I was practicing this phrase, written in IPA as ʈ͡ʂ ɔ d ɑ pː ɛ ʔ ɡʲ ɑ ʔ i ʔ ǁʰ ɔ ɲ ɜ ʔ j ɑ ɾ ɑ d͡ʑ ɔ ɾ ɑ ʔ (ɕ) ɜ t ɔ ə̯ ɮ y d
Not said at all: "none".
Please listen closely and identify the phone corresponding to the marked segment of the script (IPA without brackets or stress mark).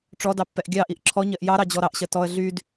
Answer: ɕ